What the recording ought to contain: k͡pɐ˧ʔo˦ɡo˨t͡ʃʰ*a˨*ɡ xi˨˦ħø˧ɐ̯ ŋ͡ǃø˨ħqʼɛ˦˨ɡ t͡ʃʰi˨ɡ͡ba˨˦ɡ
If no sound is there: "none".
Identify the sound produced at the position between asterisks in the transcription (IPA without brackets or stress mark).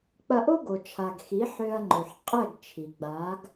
a˨